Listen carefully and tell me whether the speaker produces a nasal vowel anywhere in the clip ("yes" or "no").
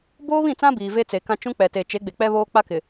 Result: yes